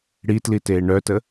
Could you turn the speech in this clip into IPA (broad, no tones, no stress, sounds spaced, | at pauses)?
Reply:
ɽ i t l i t eː ɳ œ t ə